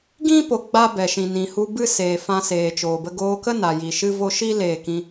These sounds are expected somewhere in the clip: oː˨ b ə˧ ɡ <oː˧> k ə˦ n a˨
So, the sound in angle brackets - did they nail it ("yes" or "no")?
yes